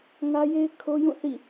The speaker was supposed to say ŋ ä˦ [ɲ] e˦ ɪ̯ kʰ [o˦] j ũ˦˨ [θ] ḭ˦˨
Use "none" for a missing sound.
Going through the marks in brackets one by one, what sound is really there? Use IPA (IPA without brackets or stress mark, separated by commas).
j, o˦, θ